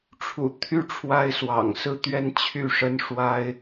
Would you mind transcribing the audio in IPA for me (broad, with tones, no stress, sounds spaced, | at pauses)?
ʈ͡ʂʰ ṵ˨˩ t̪ʰ y˥˩ ʈ͡ʂʰ w a˥ ɪ̯ s w ɑ̰˨˩ ŋ s ɹ̩˥˩ t̪ ɥ ɛ˥ n t͡ɕʰ y˥˩ ʂ ə˥ n ʂ w a˥ ɪ̯